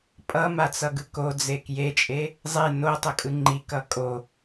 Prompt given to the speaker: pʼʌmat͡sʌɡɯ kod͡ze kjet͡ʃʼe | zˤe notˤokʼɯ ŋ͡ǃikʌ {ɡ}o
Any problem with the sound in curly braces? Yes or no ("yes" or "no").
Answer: yes